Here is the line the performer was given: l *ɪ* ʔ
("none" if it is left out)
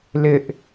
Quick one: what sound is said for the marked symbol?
ɪ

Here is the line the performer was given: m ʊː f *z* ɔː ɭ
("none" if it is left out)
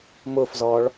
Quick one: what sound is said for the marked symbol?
z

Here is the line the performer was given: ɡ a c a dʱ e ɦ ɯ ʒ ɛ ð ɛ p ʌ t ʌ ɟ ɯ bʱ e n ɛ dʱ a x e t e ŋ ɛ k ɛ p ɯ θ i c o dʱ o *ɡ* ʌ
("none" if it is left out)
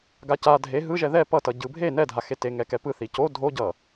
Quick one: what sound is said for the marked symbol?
ɟ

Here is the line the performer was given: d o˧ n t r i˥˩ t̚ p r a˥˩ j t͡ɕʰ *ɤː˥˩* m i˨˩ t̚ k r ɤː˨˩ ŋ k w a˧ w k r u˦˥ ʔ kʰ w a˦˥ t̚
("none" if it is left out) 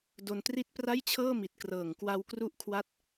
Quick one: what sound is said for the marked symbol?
ɤː˥˩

